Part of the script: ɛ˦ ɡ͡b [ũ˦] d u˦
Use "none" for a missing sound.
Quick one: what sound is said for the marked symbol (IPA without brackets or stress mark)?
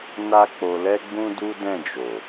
ũ˦